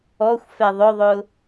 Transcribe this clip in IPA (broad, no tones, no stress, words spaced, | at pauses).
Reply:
ɔxʷ fɛðˤʊðˤʊ